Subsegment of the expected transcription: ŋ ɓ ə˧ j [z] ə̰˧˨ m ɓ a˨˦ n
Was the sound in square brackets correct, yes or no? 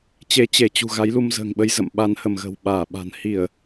yes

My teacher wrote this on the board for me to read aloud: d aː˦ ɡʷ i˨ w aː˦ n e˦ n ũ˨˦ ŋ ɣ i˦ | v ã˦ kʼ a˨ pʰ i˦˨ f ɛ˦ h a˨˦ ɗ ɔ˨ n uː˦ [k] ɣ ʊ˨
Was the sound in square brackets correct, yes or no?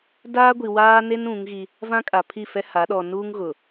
no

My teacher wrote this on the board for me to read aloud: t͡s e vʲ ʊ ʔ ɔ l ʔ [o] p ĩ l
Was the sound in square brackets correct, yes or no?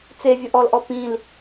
no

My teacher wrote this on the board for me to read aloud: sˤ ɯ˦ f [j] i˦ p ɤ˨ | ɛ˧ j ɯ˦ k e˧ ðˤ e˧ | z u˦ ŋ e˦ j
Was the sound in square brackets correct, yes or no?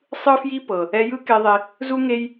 yes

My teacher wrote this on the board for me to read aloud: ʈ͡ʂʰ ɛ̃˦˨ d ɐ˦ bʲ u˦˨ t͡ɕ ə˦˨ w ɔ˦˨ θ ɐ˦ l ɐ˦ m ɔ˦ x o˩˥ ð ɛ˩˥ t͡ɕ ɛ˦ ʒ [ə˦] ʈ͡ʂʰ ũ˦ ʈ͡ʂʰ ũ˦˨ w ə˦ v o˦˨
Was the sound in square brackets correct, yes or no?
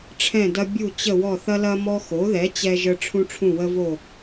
yes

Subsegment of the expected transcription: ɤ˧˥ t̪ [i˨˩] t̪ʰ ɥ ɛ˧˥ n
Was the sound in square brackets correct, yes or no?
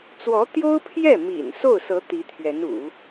no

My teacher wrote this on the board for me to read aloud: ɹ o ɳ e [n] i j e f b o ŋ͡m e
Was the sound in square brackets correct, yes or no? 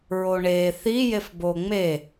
no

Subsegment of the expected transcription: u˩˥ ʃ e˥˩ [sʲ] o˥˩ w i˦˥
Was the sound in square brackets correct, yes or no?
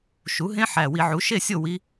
yes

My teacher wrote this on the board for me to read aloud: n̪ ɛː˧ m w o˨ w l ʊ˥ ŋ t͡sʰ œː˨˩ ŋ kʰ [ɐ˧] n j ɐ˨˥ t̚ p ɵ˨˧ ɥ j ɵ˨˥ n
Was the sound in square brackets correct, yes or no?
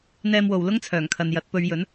no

